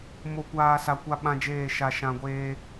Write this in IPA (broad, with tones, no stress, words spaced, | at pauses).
mo˨kʷaː˨ sa˨kʷa˦ɓã˦d͡ʒeː˦˨ ʃa˨ʃã˨ɡʷeː˦